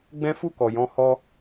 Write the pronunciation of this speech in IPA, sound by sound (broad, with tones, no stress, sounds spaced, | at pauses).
ɡ͡b ɛ̃˦ f u˦˨ k ɔ˨ j ɔ̃˧ h ɔ˧